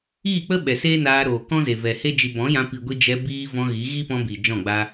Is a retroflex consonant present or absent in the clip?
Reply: absent